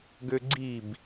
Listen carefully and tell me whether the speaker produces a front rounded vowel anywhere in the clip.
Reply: yes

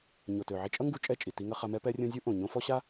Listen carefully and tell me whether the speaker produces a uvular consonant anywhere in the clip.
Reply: yes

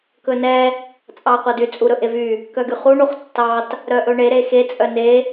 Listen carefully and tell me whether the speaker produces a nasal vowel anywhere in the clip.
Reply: no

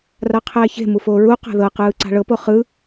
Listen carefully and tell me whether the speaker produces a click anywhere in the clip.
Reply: yes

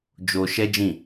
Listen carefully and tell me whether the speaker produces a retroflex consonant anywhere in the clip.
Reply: no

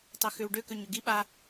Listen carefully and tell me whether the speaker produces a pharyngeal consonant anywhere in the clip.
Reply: no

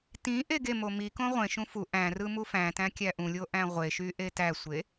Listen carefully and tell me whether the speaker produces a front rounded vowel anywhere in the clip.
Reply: yes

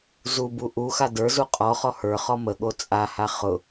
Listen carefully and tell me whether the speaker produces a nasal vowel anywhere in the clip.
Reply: no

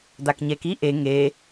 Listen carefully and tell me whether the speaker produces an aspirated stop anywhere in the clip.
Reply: no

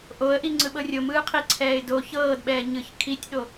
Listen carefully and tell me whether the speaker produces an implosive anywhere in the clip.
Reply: yes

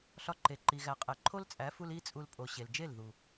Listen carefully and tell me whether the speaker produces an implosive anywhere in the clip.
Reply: no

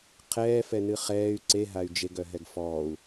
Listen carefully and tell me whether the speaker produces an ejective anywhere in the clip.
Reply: no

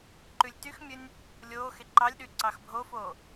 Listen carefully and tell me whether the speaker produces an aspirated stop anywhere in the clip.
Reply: no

